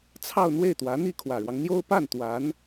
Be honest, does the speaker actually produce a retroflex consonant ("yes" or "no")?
yes